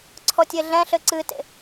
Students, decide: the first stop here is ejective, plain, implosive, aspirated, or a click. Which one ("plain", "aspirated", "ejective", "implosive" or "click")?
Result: click